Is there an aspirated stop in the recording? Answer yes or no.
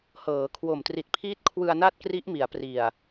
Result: yes